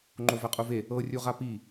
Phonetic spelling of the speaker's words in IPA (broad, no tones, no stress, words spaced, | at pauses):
ŋ͡ǃovɛqʼuve | ɤ rʲuʁapi